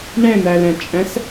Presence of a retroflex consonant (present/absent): present